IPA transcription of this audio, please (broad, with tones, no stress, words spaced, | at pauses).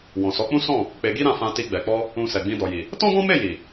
wɔ̃˨sɔ˨˦k͡pũ˦ sɔ̃˦˨ | k͡pe˧ɡi˦ ɾã˦˨fã˧ti˧ ɡ͡bɛ˨k͡pɔ˧ | ũ˧sɛ˨ɡ͡bĩ˧ dɔ˨ji˨ | tɔ̃˦ɡɔ̃˦me˦˨ ji˨